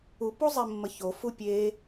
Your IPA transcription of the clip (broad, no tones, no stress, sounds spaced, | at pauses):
u p u zˤ e mː ə ç o f u pʲ e